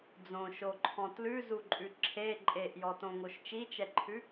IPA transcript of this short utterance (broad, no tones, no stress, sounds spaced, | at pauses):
d͡z õ ʃ o ǃʰ ɔ̃ t l ʉ z u ǃʼ ʉ ǁʰ e ǃʼ e ʔ j ɔ t õ ŋ o ʃ t͡ʃ i t͡ʃ ɛ ǃʰ ʉ